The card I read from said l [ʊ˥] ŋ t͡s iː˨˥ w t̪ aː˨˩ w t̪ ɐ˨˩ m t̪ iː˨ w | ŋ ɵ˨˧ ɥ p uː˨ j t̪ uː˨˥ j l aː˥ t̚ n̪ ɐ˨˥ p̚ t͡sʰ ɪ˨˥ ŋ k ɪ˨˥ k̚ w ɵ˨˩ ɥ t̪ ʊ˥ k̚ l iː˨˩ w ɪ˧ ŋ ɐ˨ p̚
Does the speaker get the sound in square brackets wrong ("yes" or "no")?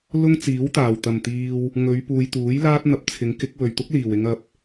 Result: no